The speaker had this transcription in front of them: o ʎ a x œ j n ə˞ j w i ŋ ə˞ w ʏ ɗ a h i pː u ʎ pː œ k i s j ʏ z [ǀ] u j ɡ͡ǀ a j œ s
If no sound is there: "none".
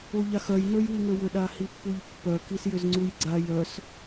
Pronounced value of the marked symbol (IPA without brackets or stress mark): ŋ͡ǀ